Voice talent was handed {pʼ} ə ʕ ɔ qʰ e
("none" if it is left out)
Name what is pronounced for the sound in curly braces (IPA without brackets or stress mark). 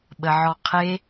ɓ